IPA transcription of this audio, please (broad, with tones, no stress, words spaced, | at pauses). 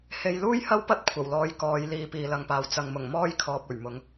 he˧j luː˥jhɐ˥wpɐ˥t̚ kʷʰɐ˨˩wlɔː˧jkɔː˨˧j liː˨˧piː˨lɐ˨ŋpaː˨w t͡sɐ˨ŋmʊ˨˩ŋmɔː˥jkʰɔː˨p̚ ɵ˨˩ɥmʊ˨˧ŋ